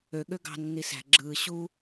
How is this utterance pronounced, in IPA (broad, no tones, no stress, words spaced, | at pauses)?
ø ɠøɡɑ̤ nːisæ̤ ɡ͡ǁɯː ɕu